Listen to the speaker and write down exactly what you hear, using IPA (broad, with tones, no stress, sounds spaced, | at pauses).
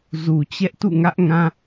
z u˨ t͡ɕ ɛ˦ ʔ t ṵ˦˨ ŋ ä˦ ʔ ŋ ã˦